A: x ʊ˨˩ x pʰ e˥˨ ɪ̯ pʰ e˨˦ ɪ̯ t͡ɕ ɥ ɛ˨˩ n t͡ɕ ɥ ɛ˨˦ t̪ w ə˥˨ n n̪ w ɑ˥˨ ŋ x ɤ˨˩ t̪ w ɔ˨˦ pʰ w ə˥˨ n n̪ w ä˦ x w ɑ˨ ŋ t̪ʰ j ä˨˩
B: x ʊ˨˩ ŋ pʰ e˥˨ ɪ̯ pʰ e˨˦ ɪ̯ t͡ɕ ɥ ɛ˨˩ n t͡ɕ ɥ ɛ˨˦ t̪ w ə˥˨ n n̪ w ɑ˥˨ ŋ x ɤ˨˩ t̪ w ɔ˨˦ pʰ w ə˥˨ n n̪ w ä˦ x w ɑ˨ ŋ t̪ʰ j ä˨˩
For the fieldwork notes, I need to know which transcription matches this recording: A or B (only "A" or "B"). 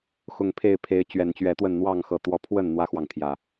B